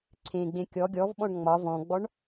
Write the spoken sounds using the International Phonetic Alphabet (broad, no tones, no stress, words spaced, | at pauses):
ǀʰẽɡ͡bẽ kʲɔ ɡʲɔvɓɔ̃ɳ ŋ͡mɒ vɔ̃ɡ͡bɔɳ